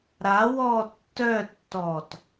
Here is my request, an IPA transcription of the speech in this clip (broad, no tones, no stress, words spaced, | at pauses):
ɾa wɔ tːœ tːɔt